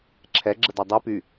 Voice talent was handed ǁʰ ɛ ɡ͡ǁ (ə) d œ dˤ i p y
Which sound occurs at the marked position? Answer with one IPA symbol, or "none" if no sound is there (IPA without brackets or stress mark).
ə